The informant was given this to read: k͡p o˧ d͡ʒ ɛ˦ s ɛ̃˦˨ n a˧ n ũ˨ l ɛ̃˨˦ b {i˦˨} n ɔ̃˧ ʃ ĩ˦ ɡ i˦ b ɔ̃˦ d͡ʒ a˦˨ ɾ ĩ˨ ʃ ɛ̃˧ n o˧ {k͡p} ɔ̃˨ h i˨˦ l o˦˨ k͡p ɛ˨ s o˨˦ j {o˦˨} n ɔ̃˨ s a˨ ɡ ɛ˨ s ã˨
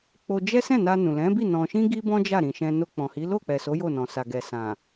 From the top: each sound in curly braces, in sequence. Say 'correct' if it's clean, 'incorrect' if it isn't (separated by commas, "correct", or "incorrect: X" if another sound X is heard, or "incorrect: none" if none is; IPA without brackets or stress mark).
correct, correct, correct